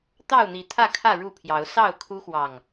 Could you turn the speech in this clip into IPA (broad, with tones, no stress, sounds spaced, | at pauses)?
t̪ ɑ˥˨ ʊ̯ n̪ i˨˦ t̪ʰ ä˥˨ kʰ ä˥˨ ɻ u˥˨ pʰ j ɑ˨˦ ʊ̯ s ɑ˥˨ ʊ̯ kʰ u˦ x w ɑ˨˩ ŋ